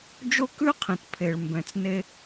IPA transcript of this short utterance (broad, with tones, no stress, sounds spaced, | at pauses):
d͡ʒ o˦ k ʉ˦ qʰ ĩ˨ t pʰ e˨ ɭ m b ɛ̃˨ t͡s n e˧